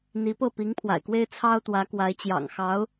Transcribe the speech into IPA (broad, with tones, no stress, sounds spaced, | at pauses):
n̪ i˧˥ p ɤ˥˩ p i˧˥ ŋ pʰ w a̰˨˩ ɪ̯ k w e˥ ɪ̯ t͡sʰ ɑ˥ ʊ̯ t̪ w ä˧˥ k w a˧˥ ɪ̯ t͡ɕ j ɑ̰˨˩ ŋ x ɑ˧˥ ʊ̯